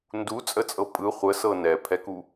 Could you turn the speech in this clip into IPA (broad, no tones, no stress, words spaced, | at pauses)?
ndut͡sʼət͡sʼɤ pʼɯ χʷəsɤ nɛpʰɛku